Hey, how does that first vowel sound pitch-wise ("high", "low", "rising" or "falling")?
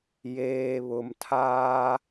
low